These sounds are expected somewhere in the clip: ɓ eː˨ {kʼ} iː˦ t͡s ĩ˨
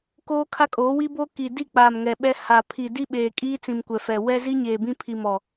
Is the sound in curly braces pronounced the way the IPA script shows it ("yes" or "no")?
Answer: yes